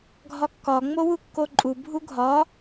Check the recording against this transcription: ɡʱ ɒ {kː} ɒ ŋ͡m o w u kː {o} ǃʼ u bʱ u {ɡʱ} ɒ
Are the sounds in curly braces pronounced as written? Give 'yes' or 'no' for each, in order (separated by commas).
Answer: yes, yes, yes